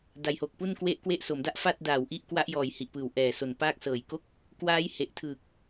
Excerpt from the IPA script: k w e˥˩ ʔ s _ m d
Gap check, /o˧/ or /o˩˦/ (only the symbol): o˩˦